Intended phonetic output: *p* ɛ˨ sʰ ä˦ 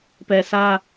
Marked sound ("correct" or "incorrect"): correct